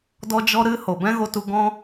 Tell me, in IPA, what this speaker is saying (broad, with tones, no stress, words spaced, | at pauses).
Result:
dɔ˦d͡ʒɔ˦ɾɨ˦ ho˨bɛ̃˦ɣo˧tu˧ ɡɔ̃˧